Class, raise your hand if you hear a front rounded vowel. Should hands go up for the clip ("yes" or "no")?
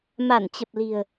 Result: no